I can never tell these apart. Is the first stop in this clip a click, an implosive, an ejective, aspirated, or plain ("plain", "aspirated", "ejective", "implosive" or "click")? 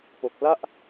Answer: plain